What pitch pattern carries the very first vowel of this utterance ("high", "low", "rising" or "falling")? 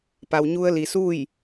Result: low